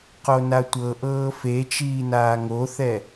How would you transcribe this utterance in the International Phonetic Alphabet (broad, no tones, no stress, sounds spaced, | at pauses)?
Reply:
q o n a tʷ ɤ ʔ ɤː f e t͡ʃ iː n aː ŋ o θ ɛ